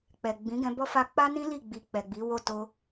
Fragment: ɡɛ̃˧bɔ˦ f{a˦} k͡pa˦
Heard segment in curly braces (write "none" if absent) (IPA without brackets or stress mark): a˦